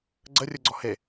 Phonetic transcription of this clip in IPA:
ɡ͡ǀ ə rʲ ɯ ɡ͡ǀ ɔ h e

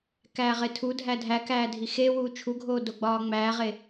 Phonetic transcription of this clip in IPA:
k æː ʁ e tʰ u dʱ æ dʱ æ k æː dʱ i x e w uː t͡ʃʰ u ɡʱ oː d o ɡ͡b ɒː ŋ͡m æː ʁ e

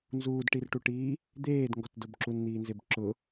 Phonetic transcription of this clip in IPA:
n z uː d ʈ i r ʈ u ʈ iː | d̪ eː d ŋ ɡ ɔ t d ʊ b ǁ u n n̪ iː n z e b ǁ ʊ

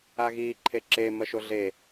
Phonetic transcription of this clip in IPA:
a ɣ iː ǃʰ e ǁ e m ɐ ʃ o ɮ e

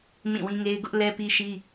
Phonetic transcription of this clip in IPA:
m ĩ˦˨ w ĩ˦ ŋ e˦ ɪ̯ ɡ ʊ˦ ʔ l ɛ˦ p i˦ ʃ i˦

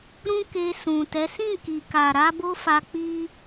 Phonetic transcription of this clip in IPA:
ɾ ũ˦ k e˧ s ũ˨ t ɛ˨˦ s ĩ˦˨ k i˨ k a˨ ɾ a˧ b o˦ f a˧ k͡p i˦

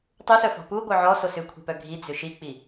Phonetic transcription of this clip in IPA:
tˤ u s œ f ɔ̤ p u ɡʷ œ ʕ ɔ s o s ʏ kʷʰ i̤ p œ ɡʱ i d͡z ʏ ʃ i k͡p i

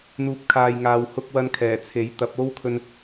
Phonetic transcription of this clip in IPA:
n̪ uː˧ p̚ kʰ aː˧ j ŋ aː˨ w h ʊ˧ k̚ w ɐ˥ n kʰ ɛː˨˩ t͡sʰ e˨˥ j t̪ ɐ˨˥ p̚ o˥ w kʰ ɵ˧ n

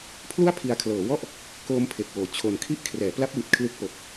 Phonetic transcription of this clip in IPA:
pʰ l u˥˩ a̯ pʰ i˧ a̯ kʰ l ɤː˩˦ w ɔ˥˩ ʔ | k oː˦˥ m pʰ e˨˩ k̚ w oː˨˩ t͡ɕʰ o˧ n kʰ i˥˩ ʔ kʰ r ɛː˩˦ p l a˦˥ p̚ w i˨˩ t̚ kʰ l ɯ˦˥ k̚ p o˨˩ k̚

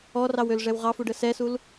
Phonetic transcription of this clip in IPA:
ɔ r ɑ w ø l ʐ ɛ w ʁ ɑ f u ɖ ə s ɛ s u l

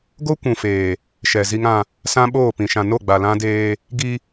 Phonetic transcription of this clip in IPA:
ɡ o˦ kʷ ũ˨ f eː˨ | ʃ ɛ˨ z i˦ ŋ ã˦ | s ã˦ ɓ oː˦˨ p ĩ˨ ʃ ã˨ n o˦˨ ɡ͡b a˨ l ã˦ d eː˦ | ɡ i˦

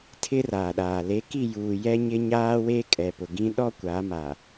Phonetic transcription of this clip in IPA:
tʰ ɪ˦ r aː˨ ɗ aː˨ l e˨˦ k i˦˨ j uː˨ j ɛ˦ ɲ ɪ˦ ɲ aː˦ w eː˦ kʼ ɛ˨ p ʊ˨ ɡ ĩ˦ ɗ ɔ˦ kʷ aː˨˦ m a˨

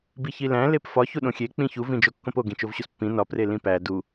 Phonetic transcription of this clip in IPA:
b i ç i l æ̃ l e p f ɒ ç u ɗ õ xʲ e k͡p ĩ ç u v ĩ d͡ʒ o kː õ p o ɡ ĩ t͡ʃ o v ɕ u s pː ĩ n ɒ p r e l ĩ p æ d u

